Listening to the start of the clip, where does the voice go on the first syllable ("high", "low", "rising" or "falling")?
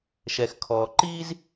low